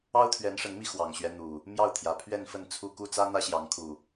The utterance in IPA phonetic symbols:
ɑ˦ ʊ̯ t̪ʰ ɥ ɛ˨˦ n ʂ ə˨˦ n m i˧ x w ɑ˨˩ ŋ ɕ ɥ ɛ˦ n̪ u˨˩ | m j ɑ˥˨ ʊ̯ t̪ʰ j ä˨˩ pʰ ɥ ɛ˥˨ n f ə˥˨ n t͡sʰ u˥˨ k u˥˨ t͡s ä˦ n̪ ä˦ ɕ j ɑ˨˦ ŋ kʰ u˨˩

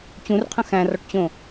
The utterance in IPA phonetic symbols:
t͡ɕ ũ r qʰ ə̃ x æ̃ r ɔ ʈ t͡ɕ õ

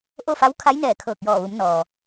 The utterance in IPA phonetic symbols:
ʔ o˥˨ f a˧˥ w kʰ a˧˥ j n ɛː˧˩ kʰ ɤː˧˩ k̚ j ɔː˧˩ ʋ u˩˧ m n ɔː˩

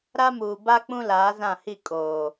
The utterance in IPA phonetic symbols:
ɾ a˦ m uː˨ b a˦ k͡p ũ˦ l aː˨˦ z ã˦˨ h i˦˨ kʼ oː˨

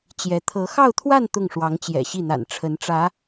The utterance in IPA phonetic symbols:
t͡ɕ j ɛ˧˥ t̪ʰ ɤ˧˥ x ɑ˥˧ ʊ̯ t̪ʰ w a˥˧ n t̪ ʊ˥˩ ŋ ʂ w ɑ˧˥ ŋ t͡ɕ j ɛ̰˨˩ ɕ i˥˩ n̪ a̰˨˩ n ʈ͡ʂʰ ə˧˥ n ʈ͡ʂ ä˧˥

